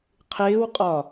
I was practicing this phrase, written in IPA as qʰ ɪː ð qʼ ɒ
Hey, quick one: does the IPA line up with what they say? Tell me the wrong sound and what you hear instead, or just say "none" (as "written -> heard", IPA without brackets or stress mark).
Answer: ð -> w